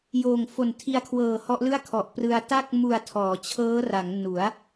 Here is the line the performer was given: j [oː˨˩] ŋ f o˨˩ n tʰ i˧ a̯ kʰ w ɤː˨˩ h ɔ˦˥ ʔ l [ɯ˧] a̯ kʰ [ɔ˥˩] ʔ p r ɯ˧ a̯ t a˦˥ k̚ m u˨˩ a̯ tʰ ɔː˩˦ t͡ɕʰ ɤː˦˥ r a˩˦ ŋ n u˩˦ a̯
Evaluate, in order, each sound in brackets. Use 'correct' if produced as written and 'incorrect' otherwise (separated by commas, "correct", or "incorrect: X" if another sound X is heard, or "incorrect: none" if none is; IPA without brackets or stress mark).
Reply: correct, incorrect: ɯ˥˩, incorrect: ɔ˨˩